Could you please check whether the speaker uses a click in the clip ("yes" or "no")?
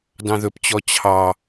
no